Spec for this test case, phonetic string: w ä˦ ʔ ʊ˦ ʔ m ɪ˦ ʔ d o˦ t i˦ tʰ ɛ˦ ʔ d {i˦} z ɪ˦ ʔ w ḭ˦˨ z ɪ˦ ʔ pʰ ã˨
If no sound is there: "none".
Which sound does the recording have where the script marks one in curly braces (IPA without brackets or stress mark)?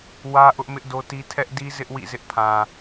i˦